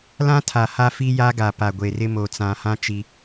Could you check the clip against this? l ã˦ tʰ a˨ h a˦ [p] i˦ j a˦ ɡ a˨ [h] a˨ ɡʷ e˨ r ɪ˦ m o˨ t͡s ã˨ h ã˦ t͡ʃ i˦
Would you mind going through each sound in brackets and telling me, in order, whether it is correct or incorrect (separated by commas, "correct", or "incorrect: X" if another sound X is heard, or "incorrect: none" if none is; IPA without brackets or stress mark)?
incorrect: f, incorrect: p